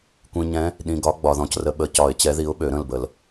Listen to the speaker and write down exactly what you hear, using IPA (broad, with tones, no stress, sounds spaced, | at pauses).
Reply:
kʷ ĩ˨ ɲ ɛ̃˨˦ | ɗ ĩ˨ ɡ ɒ˨˦ ɡ͡b ɒ˨ ð ɔ̃˨ c r ə˨˦ ɓ ə˨˩˦ c ɒ˨˩˦ ɪ̯ t͡ɕ ɛ˨˦ ð i˨˦ ʊ̯ ɓ ø˨˩˦ ɾ ə̃˦˨ l b ə˨˩˦ l